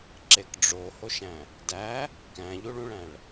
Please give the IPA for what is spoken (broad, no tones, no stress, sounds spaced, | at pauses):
ǁ e k ɖ͡ʐ o h o ʃ æ̃ | d æ | k æ̃ ʎ u ɭ ũ ɭ æ̃ ɭ